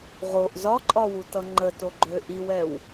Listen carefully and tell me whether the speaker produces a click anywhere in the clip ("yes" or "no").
yes